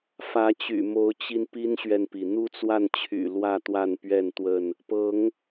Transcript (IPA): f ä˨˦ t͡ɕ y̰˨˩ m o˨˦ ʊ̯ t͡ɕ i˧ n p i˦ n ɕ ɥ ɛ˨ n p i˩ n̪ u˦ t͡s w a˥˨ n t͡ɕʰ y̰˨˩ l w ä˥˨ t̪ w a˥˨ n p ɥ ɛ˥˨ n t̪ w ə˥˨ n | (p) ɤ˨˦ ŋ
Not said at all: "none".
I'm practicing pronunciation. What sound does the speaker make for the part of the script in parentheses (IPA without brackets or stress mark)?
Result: p